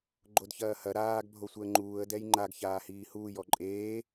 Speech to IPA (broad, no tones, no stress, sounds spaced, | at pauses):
ɡ͡ǃ o d ç ɐː h ɐ ɾ aː ɡ bʱ o sʷ ɛ ə̯ ŋ͡ǃ uː ə̯ d ɛ j ŋ͡ǃ a ɡ ç aː h iː h uː j ɔ ǃʼ eː